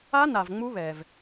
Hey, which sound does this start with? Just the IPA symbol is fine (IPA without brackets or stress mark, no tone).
a